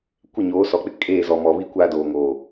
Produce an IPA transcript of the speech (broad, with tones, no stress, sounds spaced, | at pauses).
kʷ ɪ˦˨ ɲ oː˨˦ s ɔ˨ k͡p ɪ˦ kʼ eː˦˨ z ɔ˨ m ɔ˨ β i˦ kʷ aː˦ d oː˨ ŋ oː˨